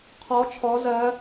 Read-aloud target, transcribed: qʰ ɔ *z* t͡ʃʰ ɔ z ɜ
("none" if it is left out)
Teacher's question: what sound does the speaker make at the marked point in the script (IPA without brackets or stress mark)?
none